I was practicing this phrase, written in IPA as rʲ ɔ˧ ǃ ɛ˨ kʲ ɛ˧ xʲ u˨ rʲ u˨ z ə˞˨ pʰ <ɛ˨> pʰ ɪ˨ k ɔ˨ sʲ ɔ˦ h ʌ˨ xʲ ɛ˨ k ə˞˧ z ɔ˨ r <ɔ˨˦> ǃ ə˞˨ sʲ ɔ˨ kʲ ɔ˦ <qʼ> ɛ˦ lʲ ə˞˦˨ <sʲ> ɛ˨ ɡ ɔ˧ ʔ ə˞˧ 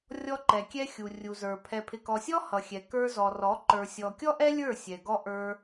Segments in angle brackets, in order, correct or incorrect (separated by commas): correct, correct, incorrect, correct